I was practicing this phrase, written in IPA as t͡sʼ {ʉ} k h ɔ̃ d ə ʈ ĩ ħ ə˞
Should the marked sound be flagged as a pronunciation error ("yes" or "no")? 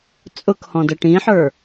yes